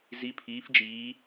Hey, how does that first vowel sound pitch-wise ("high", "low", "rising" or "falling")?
rising